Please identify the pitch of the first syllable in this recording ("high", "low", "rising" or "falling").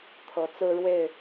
rising